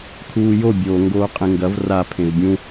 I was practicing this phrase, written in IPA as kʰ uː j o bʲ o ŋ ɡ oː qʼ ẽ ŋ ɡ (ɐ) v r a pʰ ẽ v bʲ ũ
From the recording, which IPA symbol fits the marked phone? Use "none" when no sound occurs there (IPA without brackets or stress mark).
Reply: ɐ